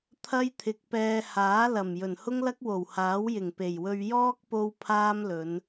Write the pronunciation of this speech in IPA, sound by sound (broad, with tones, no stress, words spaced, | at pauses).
t̪ʰɐ˥jt̪ʰɪ˨˥k̚pɛː˧ haː˨˥ lɐ˨˩m jɵ˨˩nhʊ˥ŋlɐ˥k̚ wo˨˩whaː˨˥w jɪ˨˩ŋpe˨˩jwɵ˧ɥ jɔː˥k̚ po˥wpʰaː˥mlɵ˨˧n